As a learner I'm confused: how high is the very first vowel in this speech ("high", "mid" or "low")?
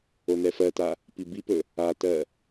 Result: mid